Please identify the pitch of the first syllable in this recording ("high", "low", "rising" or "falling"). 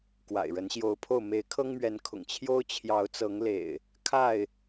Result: low